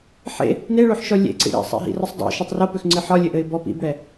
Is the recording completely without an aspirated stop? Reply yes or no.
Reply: yes